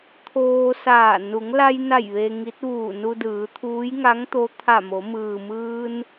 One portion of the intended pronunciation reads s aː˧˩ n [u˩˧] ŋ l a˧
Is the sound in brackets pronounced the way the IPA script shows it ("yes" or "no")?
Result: yes